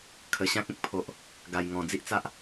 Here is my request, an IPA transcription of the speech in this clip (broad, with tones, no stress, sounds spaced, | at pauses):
kʰ ə˨˩ ɕ ã˦ k̚ ẽ˦ k̚ pʰ o˨ ʔ | ɡ a˨˩ j ŋ ɔ̃˨˩ d͡z i˦ ʔ t͡s a˦ ʔ